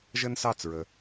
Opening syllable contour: high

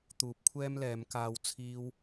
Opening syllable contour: rising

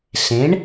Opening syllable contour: rising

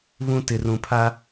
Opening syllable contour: high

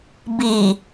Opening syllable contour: low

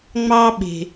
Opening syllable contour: high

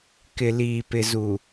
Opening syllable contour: low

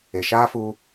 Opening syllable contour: low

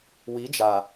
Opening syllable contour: rising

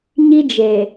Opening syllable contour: high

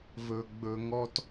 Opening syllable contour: low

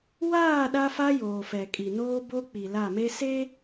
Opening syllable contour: falling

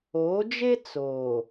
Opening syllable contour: rising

